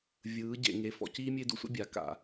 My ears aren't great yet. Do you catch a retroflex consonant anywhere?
no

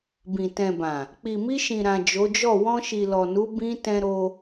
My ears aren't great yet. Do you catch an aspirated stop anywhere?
no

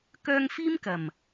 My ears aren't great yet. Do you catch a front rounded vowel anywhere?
yes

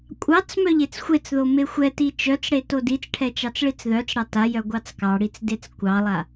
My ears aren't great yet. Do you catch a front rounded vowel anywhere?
yes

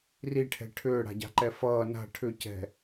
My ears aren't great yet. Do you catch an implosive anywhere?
no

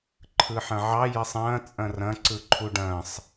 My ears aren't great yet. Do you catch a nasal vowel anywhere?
yes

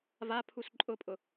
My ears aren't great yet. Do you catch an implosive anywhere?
no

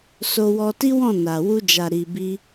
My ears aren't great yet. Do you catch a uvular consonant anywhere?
no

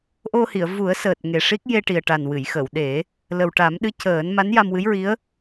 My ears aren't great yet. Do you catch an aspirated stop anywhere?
no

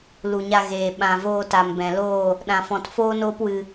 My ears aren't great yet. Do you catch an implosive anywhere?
yes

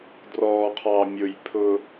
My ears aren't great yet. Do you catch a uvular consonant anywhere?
yes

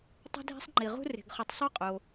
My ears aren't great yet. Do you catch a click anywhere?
yes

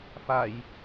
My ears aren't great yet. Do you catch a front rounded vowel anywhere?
no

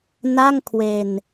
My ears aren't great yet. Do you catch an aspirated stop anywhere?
yes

